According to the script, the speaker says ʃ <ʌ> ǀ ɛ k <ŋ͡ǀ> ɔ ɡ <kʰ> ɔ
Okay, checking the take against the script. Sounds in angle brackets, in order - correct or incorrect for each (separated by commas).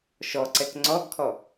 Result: incorrect, correct, correct